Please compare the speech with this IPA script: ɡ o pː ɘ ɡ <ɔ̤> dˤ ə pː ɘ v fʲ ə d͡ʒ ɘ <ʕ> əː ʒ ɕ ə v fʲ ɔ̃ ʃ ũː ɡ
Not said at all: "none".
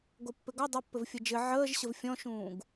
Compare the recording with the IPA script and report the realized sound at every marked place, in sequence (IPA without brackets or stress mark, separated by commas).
ɔ, ʕ